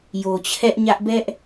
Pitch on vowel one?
low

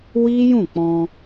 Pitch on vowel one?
high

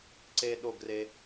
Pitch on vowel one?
low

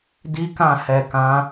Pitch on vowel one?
high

